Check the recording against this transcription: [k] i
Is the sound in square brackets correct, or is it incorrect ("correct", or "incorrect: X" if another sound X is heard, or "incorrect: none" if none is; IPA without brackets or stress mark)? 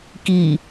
correct